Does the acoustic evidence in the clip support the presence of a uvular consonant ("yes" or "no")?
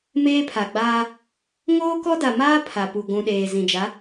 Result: no